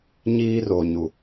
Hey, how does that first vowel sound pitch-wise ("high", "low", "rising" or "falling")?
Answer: high